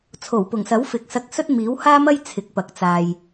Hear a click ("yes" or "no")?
no